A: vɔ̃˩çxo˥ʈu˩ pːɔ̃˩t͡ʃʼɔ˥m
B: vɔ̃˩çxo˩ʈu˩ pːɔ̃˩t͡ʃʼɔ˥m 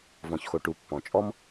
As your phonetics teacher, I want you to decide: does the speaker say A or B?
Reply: B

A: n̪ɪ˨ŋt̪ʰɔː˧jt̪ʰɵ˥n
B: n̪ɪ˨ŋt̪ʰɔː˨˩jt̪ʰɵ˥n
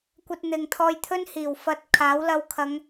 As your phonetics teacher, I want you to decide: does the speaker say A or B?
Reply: A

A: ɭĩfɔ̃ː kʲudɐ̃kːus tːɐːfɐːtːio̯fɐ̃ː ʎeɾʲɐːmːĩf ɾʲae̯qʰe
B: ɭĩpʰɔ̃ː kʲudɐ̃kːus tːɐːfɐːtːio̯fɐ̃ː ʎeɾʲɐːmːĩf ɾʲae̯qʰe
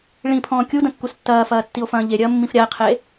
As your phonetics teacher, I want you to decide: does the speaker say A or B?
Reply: B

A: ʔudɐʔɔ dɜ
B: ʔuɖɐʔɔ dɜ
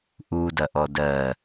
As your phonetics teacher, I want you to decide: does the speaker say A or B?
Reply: A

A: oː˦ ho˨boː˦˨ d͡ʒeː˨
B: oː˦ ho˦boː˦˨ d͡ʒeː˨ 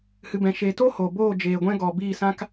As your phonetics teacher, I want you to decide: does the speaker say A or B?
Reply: A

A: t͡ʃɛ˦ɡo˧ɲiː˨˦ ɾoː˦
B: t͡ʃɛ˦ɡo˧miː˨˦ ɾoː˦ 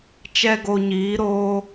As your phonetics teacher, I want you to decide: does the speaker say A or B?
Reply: A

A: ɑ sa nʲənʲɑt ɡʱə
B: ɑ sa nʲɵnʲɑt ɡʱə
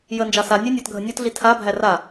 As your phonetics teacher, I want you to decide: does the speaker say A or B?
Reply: B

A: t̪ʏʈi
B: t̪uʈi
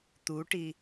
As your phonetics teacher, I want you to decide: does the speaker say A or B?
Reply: B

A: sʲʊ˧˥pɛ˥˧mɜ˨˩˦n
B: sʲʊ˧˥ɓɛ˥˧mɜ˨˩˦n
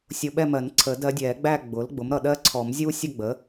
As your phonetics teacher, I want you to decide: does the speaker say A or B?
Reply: B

